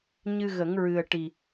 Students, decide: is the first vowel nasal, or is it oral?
oral